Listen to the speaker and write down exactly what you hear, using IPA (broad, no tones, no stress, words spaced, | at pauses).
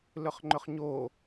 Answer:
lʏχŋ͡ǃʏχɲo